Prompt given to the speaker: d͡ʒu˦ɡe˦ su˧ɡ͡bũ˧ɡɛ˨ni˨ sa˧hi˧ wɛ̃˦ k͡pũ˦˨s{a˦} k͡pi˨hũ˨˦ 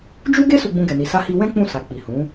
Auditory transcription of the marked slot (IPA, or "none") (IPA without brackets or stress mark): a˨